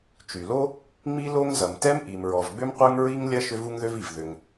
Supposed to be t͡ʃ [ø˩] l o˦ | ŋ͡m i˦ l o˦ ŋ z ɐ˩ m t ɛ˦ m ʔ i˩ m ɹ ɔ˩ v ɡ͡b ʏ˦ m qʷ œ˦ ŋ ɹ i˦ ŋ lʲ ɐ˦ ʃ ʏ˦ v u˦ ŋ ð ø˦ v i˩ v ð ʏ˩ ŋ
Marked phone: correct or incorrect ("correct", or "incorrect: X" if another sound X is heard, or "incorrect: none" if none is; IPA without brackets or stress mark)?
incorrect: y˩